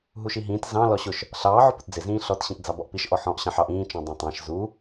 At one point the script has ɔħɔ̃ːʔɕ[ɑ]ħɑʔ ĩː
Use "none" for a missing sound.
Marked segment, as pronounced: ɑ̃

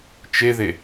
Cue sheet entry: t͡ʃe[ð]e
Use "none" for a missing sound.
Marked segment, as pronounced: ð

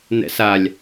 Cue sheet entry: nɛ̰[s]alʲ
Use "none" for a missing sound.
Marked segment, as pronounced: s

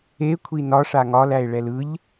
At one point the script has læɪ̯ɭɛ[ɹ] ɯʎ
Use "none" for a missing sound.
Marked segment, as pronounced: l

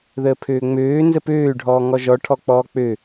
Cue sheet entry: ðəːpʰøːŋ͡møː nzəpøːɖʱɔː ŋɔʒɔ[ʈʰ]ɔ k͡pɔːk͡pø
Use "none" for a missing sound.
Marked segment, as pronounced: ʈʰ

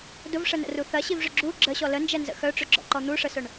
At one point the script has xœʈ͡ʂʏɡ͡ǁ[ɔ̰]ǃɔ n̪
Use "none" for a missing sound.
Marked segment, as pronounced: ɔ̰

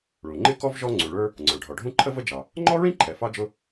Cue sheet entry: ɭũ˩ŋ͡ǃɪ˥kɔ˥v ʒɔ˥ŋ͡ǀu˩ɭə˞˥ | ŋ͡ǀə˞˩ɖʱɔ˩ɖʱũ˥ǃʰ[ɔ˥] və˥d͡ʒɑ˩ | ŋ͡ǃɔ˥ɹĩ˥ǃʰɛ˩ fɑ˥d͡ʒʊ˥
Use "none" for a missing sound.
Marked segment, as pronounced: ə˥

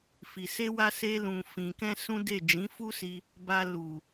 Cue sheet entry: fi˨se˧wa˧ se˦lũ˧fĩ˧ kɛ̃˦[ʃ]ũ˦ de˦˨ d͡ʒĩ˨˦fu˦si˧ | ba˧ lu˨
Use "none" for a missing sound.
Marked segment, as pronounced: s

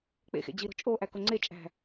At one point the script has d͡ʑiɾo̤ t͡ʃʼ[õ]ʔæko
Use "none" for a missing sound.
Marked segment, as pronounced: o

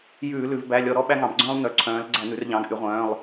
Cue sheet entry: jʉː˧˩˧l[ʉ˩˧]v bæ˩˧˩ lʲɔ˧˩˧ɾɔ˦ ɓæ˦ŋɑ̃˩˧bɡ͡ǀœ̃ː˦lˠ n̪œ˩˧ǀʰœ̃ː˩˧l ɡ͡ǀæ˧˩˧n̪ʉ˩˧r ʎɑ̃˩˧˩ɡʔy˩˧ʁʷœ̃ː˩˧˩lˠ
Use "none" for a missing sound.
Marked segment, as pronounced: ʉ˩˧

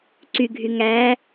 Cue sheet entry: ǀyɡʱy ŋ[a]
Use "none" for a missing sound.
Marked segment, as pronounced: æ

